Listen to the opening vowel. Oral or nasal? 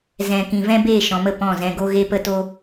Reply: nasal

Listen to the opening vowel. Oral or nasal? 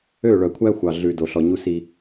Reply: oral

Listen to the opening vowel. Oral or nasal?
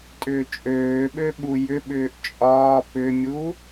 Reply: oral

